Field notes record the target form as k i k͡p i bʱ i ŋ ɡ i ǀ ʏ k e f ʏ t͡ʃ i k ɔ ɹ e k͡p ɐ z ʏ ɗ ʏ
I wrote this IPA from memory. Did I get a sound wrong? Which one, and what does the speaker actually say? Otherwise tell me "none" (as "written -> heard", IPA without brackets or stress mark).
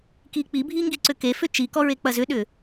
none